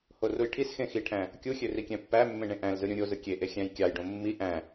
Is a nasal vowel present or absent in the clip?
present